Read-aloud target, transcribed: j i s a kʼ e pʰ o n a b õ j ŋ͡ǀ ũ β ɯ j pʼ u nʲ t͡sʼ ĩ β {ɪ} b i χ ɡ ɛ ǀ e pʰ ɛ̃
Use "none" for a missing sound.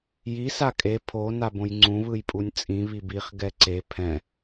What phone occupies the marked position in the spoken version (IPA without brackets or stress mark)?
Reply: i